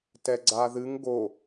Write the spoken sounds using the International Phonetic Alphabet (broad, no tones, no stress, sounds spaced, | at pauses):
t ɛ ɡ͡ǀ a ð ɨ ŋ ɡ o